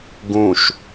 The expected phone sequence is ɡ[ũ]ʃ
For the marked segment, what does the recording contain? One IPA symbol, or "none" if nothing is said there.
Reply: ũ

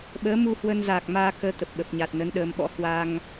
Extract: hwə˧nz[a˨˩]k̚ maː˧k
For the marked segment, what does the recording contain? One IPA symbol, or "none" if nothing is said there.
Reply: aː˨˩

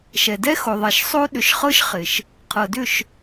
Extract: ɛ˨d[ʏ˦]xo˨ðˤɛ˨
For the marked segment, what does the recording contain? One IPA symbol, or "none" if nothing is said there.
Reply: ɛ˦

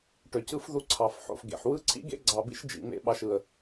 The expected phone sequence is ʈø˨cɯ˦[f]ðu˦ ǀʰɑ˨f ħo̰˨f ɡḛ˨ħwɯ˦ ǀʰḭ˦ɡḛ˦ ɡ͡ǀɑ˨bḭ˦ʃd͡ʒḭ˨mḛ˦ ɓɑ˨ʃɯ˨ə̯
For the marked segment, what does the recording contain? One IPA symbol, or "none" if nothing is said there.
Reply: f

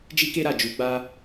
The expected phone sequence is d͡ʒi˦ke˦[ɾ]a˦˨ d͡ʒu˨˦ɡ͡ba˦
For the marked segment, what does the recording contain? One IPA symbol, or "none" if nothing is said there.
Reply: ɾ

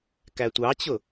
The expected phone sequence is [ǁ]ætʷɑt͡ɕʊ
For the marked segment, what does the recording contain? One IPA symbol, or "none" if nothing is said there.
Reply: k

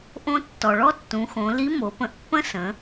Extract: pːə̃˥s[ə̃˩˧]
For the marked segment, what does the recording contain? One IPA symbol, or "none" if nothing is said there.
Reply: ə̃˩˧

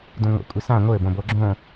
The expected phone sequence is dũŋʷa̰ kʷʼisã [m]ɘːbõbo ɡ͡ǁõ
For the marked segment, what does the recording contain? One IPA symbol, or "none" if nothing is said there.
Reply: ŋʷ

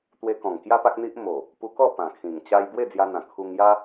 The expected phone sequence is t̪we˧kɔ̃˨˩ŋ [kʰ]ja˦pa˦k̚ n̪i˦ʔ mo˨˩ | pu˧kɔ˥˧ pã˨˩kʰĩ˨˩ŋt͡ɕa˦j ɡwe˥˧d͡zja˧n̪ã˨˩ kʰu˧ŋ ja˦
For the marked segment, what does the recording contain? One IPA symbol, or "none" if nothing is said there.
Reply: k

